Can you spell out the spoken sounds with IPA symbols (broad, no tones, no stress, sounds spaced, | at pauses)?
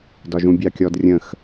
d ɒ ʒ ũ bʲ ɑ kʲ ɔ d rʲ ə̃ x